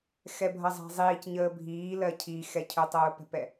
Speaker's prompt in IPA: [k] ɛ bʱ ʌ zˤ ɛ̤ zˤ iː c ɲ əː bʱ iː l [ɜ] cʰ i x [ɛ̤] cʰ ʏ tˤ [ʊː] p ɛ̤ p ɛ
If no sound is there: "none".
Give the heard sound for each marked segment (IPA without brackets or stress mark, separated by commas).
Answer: x, ɜ, ɛ, ʊː